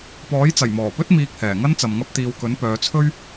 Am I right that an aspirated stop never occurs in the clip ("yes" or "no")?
no